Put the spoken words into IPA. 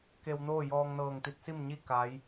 k e˧ w n oː˥˨ j ɔː˧ ŋ n ɤː˧˩ ŋ t̪ i˧˥ t̚ s i˥˨ m ɲ i˥˨ k a˧˥ j

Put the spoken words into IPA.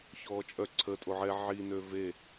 ç ɔː t͡ʃʼ œ ǀʰ ə tʼ o ʕ ɛ ʕ i n ø v e

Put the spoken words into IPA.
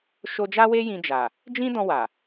ʃ o˧ d͡ʒ a˦ w e˦ j ĩ˧ d͡ʒ a˨ | d͡ʒ ĩ˦ d ɔ̃˧ w a˨

